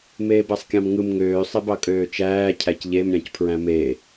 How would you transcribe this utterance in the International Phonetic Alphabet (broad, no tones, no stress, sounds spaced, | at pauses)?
m eː b æ sˤ kʲ ɑ̃ m ŋ ɯ m ŋ øː sˤ e b ɑ kʼ øː t͡ʃ æː cʰ æ c ʎ e m ɾʲ ɑ̃ c pʰ ɹ æ̃ m e